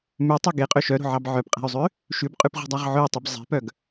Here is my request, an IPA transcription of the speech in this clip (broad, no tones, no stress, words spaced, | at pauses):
mʉtˤɵ ɡeqʼø ʃœɾo̤ʕɑb ʕœpqʼæ̤y̯zˤø | ʃʉbqʼʉpʁṳdˤɑʁ ʕɵi̯tˤʉb zˤe̤pœɡ